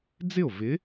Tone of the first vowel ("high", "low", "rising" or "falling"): falling